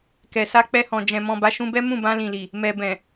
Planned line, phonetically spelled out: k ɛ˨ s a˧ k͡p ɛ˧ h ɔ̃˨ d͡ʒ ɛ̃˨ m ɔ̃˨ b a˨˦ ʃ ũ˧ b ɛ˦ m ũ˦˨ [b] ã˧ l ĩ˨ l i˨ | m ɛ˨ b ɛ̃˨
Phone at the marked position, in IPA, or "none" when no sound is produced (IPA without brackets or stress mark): b